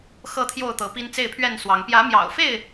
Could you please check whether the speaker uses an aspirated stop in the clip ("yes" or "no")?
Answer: yes